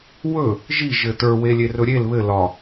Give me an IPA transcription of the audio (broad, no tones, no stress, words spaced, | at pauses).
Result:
wɵ | ʒi ʒɘtə˞ welʲerɵɾʲel βɘ lɒ